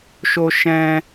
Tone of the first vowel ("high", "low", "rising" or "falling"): high